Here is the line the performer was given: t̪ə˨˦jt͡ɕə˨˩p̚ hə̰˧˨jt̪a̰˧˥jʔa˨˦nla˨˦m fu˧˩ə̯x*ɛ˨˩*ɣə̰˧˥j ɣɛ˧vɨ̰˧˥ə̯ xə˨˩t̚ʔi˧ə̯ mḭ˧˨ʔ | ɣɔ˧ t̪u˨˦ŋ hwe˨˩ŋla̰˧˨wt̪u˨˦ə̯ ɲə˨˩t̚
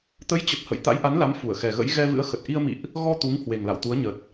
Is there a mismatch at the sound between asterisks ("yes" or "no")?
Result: no